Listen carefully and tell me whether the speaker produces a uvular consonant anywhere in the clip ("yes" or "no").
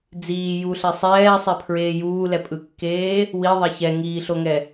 no